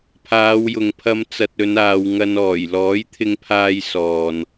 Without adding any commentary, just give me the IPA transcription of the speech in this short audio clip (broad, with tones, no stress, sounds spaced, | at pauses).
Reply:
pʰ aː˨˧ w j ʊ˨ ŋ pʰ ɐ˧ m t͡s ɐ˧ t̚ ɵ˨˧ n aː˧ w ŋ ɐ˧ n ɔː˨˩ j l ɔː˨˥ j t̪ʰ ɪ˧ ŋ pʰ aː˧ j s ɔː˨ n